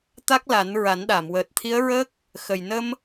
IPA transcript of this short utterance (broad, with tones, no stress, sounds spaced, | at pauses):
t̪ a˦˥ k̚ l a˨˩˦ n ɹ a˨˩˦ n ɗ a˨˩˨ m w əː˨˩ t̚ t̪ʰ i˧˥ ə̯ ɹ əː˦˥ k̚ | x ə˨˩ j n ə˧ m